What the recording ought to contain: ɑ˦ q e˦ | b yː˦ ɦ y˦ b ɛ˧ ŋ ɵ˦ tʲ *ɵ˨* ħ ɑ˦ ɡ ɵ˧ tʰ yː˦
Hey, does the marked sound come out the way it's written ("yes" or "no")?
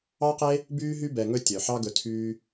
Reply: no